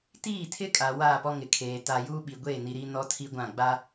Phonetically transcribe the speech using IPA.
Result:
t iː˦˨ tʰ ɪ˦ kʼ a˨ w aː˦˨ p ɔ˦ ŋ ɪ˨ kʰ eː˨ t a˦ j uː˦ ɓ i˨ ɡʷ eː˦˨ n i˨ ɾ i˦ n ɔ˦ tʰ i˦ ɡʷ ã˦˨ ɡ͡b a˦

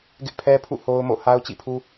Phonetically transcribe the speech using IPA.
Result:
ɡ ɪ˦ ʔ pʰ ɛ˦ pʰ ṵ˦˨ h o˦ ʊ̯ m o̰˦˨ h a˦ ʊ̯ t͡ɕ ḭ˦˨ pʰ u˦

